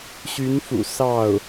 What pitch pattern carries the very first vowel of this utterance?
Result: rising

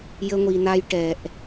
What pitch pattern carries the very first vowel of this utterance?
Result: high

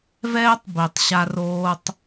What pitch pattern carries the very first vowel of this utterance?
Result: high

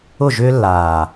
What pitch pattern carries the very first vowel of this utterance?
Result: falling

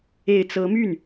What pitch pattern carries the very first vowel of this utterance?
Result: low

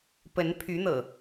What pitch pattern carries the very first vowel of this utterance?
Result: rising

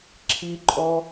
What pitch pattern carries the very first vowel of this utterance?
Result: high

